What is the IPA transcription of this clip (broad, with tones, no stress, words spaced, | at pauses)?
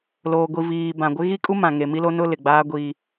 loː˨ɡʷi˨ viː˨bã˨ɡʷɪ˦ ɣi˦kʼu˦ mã˨ŋe˨ mi˦lo˦nʊ˦ lɪ˨ɡ͡baː˦ɡʷiː˦